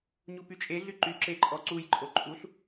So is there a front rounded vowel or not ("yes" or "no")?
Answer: yes